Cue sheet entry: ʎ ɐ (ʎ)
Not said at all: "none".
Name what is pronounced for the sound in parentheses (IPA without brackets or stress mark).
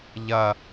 none